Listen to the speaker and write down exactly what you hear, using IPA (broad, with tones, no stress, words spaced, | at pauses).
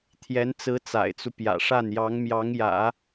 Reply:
t̪ʰjɛ˧˥nt͡sɹ̩˧˥ t͡sa̰˨˩ɪ̯t͡su˦pjä̰˨˩ʂa˥˩n jɑ˧˥ŋmjɑ˧˥ŋjä̰˨˩˦